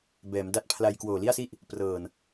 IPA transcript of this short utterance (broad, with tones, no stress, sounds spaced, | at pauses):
b ɛː˩˦ m d a˦˥ t̚ pʰ l a˧ j k w oː˨˩ l i˥˩ a̯ s i˥˩ ʔ | p r ɤː˨˩ n